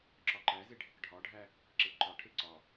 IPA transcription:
ǁ ɒ ǃ æ z e ɖʱ e k ɖʱ ɒ ɖʱ æ | ǁ e ǃ ɒ ʈʰ e ǀ ɒ

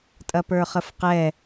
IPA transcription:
tʼ ɐ p ə˞ χ ə f q ɛ

